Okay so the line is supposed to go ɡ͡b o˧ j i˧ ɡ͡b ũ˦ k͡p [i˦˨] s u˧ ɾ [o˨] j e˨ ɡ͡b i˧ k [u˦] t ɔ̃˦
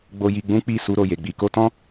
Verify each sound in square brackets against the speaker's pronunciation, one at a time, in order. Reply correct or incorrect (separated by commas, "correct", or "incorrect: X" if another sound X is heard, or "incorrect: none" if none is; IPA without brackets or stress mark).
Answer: correct, correct, incorrect: o˦